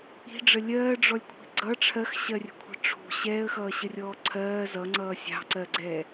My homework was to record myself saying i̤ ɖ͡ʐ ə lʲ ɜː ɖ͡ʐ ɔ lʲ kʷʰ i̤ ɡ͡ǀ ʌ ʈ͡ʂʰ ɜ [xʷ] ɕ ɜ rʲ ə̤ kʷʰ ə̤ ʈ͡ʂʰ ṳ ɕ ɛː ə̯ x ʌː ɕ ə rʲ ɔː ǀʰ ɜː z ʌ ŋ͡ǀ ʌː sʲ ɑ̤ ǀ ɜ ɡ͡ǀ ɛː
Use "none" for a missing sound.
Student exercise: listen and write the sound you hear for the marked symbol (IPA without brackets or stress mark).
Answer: x